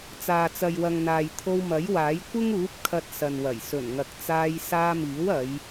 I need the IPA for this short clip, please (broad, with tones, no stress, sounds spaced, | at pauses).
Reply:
t͡s aː˨ t͡s ɐ˨ j w ɐ˨ ŋ n̪ aː˨ j t̪ʰ o˧ w m ɐ˨˥ j w aː˨˥ j kʷ ɪ˥ ŋ uː˨˥ p̚ kʰ ɐ˧ t̚ s ɐ˨ n w ɐ˨˩ j s ɵ˨˩ n ŋ ɐ˨ k̚ t͡s aː˧ j s aː˧ m iː˨˥ w ɐ˨˧ j